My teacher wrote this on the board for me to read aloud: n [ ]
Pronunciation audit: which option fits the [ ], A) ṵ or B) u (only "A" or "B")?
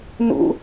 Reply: A